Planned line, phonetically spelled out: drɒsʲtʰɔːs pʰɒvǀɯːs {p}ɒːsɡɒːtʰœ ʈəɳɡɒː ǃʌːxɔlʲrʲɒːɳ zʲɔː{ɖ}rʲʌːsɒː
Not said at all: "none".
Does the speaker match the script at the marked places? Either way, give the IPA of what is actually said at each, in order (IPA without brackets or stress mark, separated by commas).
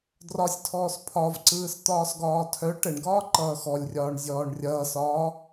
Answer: t̪, ɳ